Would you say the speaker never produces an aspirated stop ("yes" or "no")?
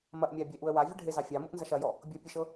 yes